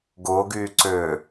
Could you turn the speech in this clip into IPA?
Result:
ɡ ʊː ɡ yː ǀ ʏː

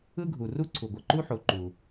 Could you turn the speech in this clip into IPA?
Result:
ɯ˥ ɡʱ u˩ r u˥ ǀʰ u˩ ɡʷ ʌ˩ ǃ u˥ ħ o˩˧ ǃ u˩

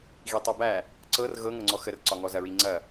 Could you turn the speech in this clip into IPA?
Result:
ɣ i tˤ ɤ b æ | ǀ ɤ r ɣ ɤ ŋ ɤ ŋ͡ǀ ɔ x ə r ǀ ɒ ŋ ɔ z ɐ ɹ i ŋ͡ǀ ɐ

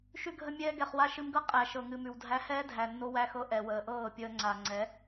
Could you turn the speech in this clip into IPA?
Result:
ʃ ʉ˧ ɡʱ ə˧ mʲ ɛː˧ ɡ ɛ˨ χ w a˧ ʃ ɨ˧ m ɡ ɤ˦ qʼ æ˨ ʃ ɤ˨ ŋ ɨ˨ m ʉ˨ w dʱ æ˧ h ɛː˦ dʱ æ˨ nː o˧ w æ˧ x ɤ˧ ʔ ɛ˨ w əː˨ ʔ ɤː˦˨ pʲ əː˧ ŋ͡ǀ a˨ ŋ͡ǀ ɛ˨˦

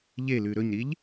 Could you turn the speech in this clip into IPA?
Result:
ʎ e l ʉ ɾ ɵ ɲ ɾ i ʎ

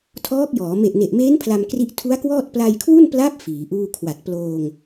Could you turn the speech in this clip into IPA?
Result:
tʰ ɔː˦˥ k̚ j ɔː˩˦ m e˨˩ ʔ n e˨˩ ʔ m eː˦˥ n pʰ l a˧ m k r i˦˥ ʔ tʰ u˦˥ a̯ k w ɔː˥˩ t̚ p l a˧ j kʰ w u˥˩ n p l a˦˥ p̚ f iː˩˦ ʔ uː˥˩ kʰ w a˨˩ t̚ p l oː˧ ŋ

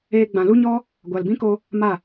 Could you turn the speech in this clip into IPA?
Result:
eː˧ ɡ͡b ã˨ l u˦ ɲ ɔ˦ | ɡʷ a˨ l b ĩ˦ k o˧ | m a˦˨

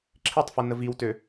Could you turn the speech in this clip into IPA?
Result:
ǁʰ i tˤ f ə n ə v i w t ø

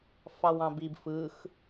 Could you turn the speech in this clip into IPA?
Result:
f ɑ w ɑ̃ b i b f ɯ x

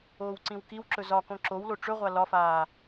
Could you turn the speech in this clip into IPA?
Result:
oː w ǀ ĩ w k i w ǁ ɵ z ɒ k õ ǁ o w l o ʈ͡ʂ ɵ ʁʷ a l ɒ f aː

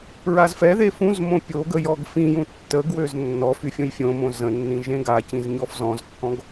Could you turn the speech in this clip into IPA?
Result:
ɹ a z f ɛ ð e f ũ z m õ pʲ o ɡ ə j ɔ ɡ f ĩ j ũ tː ə ɡ w ø z nː ɔ f y fʲ õ j fʲ õ m õ z ə̃ nː ĩ ʒ ẽ ɡ a c ĩ z ɲ ɔ f z ɔ̃ z kː ɔ̃ ɡ

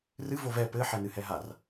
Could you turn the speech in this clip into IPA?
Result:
r ɨ v o v ɛ p ɘ ħ ɛ n ɨ h ɛ ɦ a r

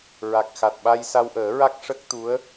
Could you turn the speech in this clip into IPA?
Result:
ɹ a˨˩ k̚ x a˨˩ t̚ ɓ a˧ j s a˧ w ʔ əː˨˩˦ ɹ a˦˥ k̚ ʂ ə˦˥ k̚ t̪ u˧˥ ə̯

